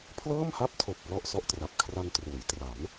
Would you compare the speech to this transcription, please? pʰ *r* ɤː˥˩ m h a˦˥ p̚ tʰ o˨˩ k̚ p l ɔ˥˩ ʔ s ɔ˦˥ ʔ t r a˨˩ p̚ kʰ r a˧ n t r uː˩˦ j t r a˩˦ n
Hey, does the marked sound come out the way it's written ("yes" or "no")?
no